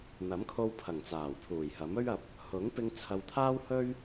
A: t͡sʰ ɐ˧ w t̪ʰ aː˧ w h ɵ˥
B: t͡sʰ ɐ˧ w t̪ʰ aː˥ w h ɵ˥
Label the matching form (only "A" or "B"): B